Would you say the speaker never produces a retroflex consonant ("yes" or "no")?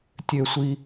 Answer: yes